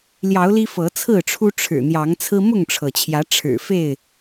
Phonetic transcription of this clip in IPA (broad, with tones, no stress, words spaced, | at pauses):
ljɑ˨˦ʊ̯li˦ fɤ˨˦t͡sʰɹ̩˥˨ʈ͡ʂʰu˦ ʈ͡ʂʰɻ̩˨˩ n̪jɑ˨˦ŋt͡sʰɹ̩˦ mʊ˥˨ŋʈ͡ʂʰɤ˩t͡ɕʰjä˨˦ ʈ͡ʂʰɻ̩˨˩fe˥˨ɪ̯